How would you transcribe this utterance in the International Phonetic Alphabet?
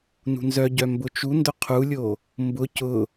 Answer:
n ṳ n z œ ɟ œ m b ʊ t͡ʃ u n d ʊ qʰ u lʲ o | m b ʊ c ʊ

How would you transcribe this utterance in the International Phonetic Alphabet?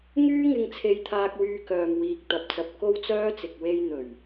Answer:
ŋ yː˥ ŋ ɪ˧ ŋ t͡sʰ e˧ j t̪ʰ aː˧ k̚ w yː˧ k œː˨ m w iː˨ k̚ t̪ ɐ˨ p̚ t͡s ɐ˨ p̚ k o˥ w t͡s œː˥ t͡s ɪ˨ k̚ w e˧ j n̪ ɵ˨˩ ɥ

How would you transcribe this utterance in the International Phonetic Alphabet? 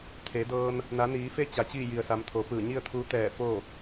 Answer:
t̪ʰ e˩˧ d ɤː˧ n | n a˩˧ n iː˩˧ f e˧˥ t͡ɕ a˩˧ t͡ɕ iː˥˨ j i˩ ə̯ s a˩˧ m t̪ʰ o˩˧ p ɯː˧˩ ɲ i˥˨ ə̯ t̪ʰ uː˧˥ t̪ ɛː˧˩ f o˥˨

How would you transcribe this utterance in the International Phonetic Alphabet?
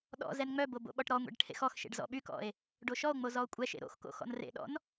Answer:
ɗ ɔ̰ z ɛ n ŋ͡m œ b o b o̰ ɓ ɔ ʈ ɾ ɔ ŋʷ ḛ ɖ ʈʰ ḛ x ɔ x ʃ ḛ ɖ z ɔ̰ ɓ y k ɔ̰ e̯ | ɖ o ʃ ɔ o̯ ŋ͡m o z ɔ o̯ kʷʼ ɛ ʃ ḛ ɾ o̰ x k o̰ x ɔ̰ n r ḛ ɗ ɔ̰ n

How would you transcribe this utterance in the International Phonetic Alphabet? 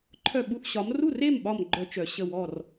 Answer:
ǃʰ œ˥˩ ɓ u˥˩ θ ɕ ɒ˨˥ m r u˥˩ r e˥˩ m ɓ ɒ˧˩ m ɡ͡ǃ œ˦ t͡ʃ œ˨˩˦ ɕ ə˥˩ w ɔ˥˩ r

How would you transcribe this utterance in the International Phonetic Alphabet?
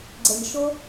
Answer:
ɡ͡ǀ ɛ˨ ɲ ʃ o˦

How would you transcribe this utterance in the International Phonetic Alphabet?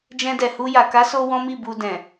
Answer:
d͡ʒ ɛ̃˧ d ɛ˨ h u˧ j a˨ k a˨˦ s o˧ w ɔ̃˦ m i˦˨ b u˨ d ɛ̃˨

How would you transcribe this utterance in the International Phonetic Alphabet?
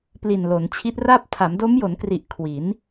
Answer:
p l i˨˩ n l o˩˦ n t͡ɕʰ i˦˥ t̚ r aː˥˩ p̚ tʰ a˩˦ m d o˦˥ m j o˩˦ n k r i˨˩ ʔ kʰ w i˩˦ n

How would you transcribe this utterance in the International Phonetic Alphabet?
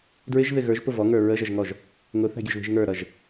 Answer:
d ɹ ɪ ʒ ð ɪ ɣ ə˞ ʒ p ʊ v ɔ ŋ ə˞ ɹ ə ʒ ʌ ʒ ŋ ɔ ʒ | ŋ ʊ θ æ̤ ɡʲ ʊ ʒ ð i̤ ʒ ŋ ə˞ ɾ ʌ ʒ

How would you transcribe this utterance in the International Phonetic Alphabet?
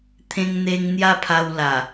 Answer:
t̪ʰ ẽ˧ ŋ n̪ e˧ ŋ n̪ j a˦ pʰ a˧ w l a˨˩

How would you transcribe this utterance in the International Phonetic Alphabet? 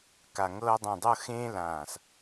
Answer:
k a˧˩ ŋ ɤː˧ dˤ ẽ˧˩ dˤ ɤ˥˧ x ẽː˥ l ãː˧˩ s

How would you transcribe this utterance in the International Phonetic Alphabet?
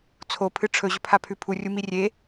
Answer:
t͡sʰ o pʰ ɨ ʈ͡ʂʰ ɵ ʑ ɵ pʰ a pʰ ʉ pʰ u rʲ u m i rʲ e

